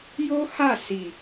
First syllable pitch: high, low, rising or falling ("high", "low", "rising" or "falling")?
high